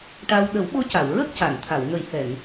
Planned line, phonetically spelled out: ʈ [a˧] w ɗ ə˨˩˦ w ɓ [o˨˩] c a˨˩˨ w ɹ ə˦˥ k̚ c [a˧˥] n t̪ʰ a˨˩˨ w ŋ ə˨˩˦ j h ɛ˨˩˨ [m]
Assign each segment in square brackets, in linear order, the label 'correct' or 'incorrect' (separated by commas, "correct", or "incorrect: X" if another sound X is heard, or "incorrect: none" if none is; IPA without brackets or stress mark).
correct, incorrect: o˧˥, incorrect: a˨˩˨, incorrect: ŋ